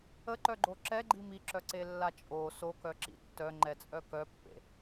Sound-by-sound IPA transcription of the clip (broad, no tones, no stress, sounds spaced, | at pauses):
ə ǃ œ ɡ͡ǃ o ǁ ɛ ɡ͡ǃ i m i ǁ œ ǀ e lː a t͡ʃʼ o s o k œ ǁ ḭ tː œ ŋ͡ǃ ɛ t͡sʼ œ k œ pː ḛ